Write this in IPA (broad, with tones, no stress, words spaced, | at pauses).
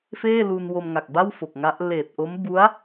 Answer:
feː˥˩lu˧n wo˧mŋa˨˩k̚ba˥˩w fo˨˩k̚ŋa˦˥ʔ leː˨˩t̚ʔo˦˥m bu˦˥a̯